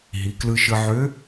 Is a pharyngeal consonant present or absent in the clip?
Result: present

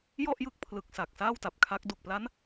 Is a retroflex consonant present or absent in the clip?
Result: absent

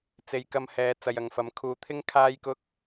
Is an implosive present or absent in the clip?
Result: absent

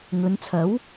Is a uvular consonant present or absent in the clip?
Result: absent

